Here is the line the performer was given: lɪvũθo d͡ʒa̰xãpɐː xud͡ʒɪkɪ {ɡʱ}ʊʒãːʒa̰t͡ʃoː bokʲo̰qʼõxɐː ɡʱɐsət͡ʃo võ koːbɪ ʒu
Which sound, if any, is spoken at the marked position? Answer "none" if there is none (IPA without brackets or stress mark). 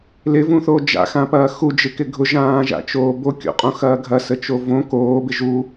ɡʱ